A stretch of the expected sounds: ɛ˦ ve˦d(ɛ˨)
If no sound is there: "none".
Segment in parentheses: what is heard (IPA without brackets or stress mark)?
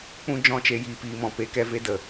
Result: ə˨